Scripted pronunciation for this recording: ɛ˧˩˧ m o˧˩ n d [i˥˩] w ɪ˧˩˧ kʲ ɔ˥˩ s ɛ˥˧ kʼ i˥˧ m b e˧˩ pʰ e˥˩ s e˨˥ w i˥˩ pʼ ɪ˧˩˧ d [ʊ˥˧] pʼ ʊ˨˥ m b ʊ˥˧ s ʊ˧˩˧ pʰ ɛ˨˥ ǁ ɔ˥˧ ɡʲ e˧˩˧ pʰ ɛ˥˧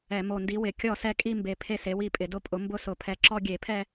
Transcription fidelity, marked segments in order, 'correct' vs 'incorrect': incorrect, correct

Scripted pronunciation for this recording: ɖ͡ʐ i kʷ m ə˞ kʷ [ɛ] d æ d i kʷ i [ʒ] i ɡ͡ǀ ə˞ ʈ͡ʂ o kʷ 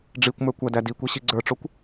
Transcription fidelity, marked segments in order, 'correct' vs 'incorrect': incorrect, incorrect

